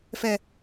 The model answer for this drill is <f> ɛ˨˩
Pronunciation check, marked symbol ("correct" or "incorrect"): correct